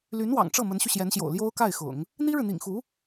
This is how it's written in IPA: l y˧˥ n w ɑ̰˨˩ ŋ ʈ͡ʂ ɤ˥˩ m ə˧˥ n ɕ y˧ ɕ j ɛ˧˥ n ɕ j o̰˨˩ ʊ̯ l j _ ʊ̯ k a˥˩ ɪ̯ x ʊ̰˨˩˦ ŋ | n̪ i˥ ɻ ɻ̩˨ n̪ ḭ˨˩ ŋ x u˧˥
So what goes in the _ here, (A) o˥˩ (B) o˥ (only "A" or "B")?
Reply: B